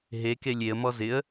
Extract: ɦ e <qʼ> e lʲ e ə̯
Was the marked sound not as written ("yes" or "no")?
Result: yes